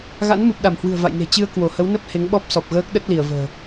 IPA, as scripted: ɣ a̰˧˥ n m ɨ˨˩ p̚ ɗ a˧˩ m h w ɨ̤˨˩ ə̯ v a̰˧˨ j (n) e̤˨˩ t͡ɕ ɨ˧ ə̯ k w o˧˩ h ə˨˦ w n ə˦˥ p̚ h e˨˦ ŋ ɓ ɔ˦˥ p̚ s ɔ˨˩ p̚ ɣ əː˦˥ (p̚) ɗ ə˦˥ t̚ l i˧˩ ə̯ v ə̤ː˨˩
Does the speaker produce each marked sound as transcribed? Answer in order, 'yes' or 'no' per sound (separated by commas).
yes, no